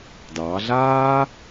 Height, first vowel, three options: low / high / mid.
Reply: low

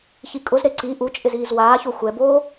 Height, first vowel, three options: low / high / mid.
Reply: high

